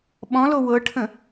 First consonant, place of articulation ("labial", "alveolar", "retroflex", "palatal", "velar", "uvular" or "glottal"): labial